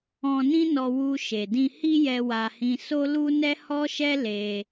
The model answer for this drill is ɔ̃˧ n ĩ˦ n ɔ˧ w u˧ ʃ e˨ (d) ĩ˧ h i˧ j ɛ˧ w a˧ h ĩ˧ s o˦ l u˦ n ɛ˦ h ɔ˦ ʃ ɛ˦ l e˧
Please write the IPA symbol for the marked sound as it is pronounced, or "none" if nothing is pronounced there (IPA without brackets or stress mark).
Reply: d